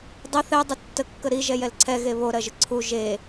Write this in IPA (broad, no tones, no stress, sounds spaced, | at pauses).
dˤ ə θ ɛ dˤ ə tː ə kː ə ɾ i ʒ ɛ j ɛ l ǀʰ ɛ ɣ e β o ɾ ɜ ʒ ə ǀʰ u ʒ e